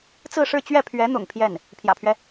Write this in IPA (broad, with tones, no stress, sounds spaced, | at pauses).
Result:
t͡s ɹ̩˥˧ ʂ ɻ̩˥˧ t͡ɕ ɥ ɛ˥˩ pʰ ɥ ɛ˧˥ n̪ ʊ̰˨˩ ŋ pʰ j ɛ˥˩ n | pʰ j ä̰˨˩ pʰ ɥ ɛ˦